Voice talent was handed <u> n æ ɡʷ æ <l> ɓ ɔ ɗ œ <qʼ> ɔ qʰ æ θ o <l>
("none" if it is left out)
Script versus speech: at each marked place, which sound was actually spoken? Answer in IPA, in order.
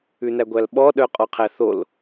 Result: ʉ, l, qʼ, l

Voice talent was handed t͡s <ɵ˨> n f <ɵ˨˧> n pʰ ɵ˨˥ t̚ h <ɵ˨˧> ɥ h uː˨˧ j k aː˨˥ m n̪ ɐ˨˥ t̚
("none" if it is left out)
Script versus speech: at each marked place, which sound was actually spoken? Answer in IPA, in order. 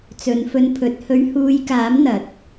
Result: ɵ˨˧, ɵ˧, ɵ˨˧

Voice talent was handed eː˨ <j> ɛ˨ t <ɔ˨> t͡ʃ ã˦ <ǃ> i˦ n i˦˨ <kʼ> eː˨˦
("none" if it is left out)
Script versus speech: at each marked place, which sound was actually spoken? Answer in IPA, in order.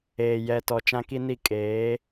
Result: j, ɔ˨, k, kʼ

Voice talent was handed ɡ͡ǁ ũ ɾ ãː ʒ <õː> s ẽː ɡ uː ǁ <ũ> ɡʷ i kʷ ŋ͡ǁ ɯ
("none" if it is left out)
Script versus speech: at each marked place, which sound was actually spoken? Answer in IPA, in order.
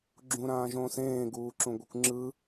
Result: õː, ũ

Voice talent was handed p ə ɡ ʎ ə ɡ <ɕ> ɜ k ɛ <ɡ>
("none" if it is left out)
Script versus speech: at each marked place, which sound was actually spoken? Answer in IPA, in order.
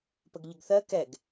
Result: θ, ɡ

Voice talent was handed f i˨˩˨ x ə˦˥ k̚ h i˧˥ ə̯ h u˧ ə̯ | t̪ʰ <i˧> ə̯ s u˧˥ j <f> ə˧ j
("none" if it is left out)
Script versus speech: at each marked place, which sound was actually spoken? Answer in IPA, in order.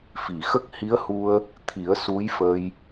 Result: i˨˩˦, f

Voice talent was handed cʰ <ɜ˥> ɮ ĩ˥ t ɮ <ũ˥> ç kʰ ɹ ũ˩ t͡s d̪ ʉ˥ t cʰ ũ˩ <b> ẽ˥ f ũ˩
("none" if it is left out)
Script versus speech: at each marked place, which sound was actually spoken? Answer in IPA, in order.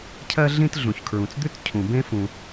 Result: ɜ˥, ũ˩, b

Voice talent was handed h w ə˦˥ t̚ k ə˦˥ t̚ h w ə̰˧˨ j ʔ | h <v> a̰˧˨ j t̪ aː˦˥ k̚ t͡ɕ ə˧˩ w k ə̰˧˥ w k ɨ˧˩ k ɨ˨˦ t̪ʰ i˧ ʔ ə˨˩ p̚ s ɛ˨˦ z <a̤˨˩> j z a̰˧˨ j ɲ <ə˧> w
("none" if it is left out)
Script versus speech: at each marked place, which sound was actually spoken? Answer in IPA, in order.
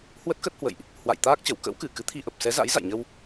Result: w, a̰˧˥, ə˧

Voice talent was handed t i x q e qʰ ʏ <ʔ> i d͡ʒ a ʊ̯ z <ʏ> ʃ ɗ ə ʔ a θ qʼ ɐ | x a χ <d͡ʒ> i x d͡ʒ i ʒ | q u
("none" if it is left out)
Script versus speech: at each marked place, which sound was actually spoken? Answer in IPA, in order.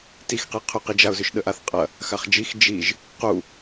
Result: q, ʏ, d͡ʒ

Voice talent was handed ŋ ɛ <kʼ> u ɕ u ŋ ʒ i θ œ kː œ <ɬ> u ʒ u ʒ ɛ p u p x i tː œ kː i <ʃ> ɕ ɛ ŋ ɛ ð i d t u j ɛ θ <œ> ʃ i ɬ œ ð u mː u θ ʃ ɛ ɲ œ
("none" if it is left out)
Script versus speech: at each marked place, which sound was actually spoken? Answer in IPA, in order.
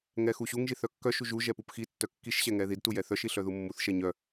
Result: x, ʃ, ʃ, œ

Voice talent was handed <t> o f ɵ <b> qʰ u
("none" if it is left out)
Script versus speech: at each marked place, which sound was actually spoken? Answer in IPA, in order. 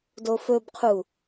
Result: d, b

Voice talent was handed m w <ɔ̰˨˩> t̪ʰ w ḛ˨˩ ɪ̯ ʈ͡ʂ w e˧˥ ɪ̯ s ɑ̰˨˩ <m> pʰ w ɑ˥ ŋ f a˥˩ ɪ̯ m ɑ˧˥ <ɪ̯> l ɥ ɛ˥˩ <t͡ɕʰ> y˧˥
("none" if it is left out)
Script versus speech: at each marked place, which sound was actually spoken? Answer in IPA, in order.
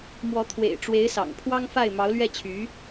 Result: ɔ˧˥, ŋ, ʊ̯, t͡ɕʰ

